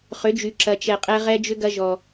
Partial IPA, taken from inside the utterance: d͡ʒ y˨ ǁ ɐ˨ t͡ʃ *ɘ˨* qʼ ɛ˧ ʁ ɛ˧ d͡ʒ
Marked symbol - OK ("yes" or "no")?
no